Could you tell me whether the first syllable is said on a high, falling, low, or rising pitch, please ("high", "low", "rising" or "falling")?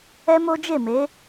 high